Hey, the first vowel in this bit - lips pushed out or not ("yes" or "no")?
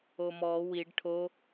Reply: yes